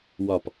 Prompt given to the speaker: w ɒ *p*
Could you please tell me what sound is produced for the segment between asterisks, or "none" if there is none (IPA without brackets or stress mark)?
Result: p